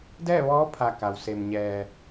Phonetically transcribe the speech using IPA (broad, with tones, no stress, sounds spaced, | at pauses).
d ɛː˥˨ ʋ ɔː˧˥ pʰ a˧˩ k a˩ w s e˩ m ɲ ɛː˩